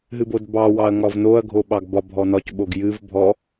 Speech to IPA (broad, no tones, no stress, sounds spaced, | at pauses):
ɦ ɨ b o d b ɑ w ɑ ɐ̯ ŋ ɒ v n o ɐ̯ ɡʱ o ɓ ɑ ɡ b ɒ bʱ ɔ n ɒ c ɓ o ɡ j ɨ v bʱ ɔ